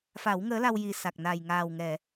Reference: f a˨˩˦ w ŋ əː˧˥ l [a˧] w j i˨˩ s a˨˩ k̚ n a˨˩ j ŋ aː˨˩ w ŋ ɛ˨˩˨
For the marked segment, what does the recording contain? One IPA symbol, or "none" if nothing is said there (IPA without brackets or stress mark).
a˧